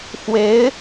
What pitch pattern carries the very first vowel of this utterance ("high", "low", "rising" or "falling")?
rising